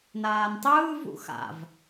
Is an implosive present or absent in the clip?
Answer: absent